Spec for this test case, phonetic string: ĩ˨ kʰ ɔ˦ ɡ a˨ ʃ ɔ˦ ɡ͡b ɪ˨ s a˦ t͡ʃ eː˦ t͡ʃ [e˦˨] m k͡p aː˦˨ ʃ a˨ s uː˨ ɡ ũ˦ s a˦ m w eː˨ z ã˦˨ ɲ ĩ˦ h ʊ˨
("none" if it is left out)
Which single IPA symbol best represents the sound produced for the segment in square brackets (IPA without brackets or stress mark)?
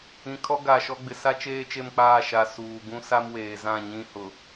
e˦˨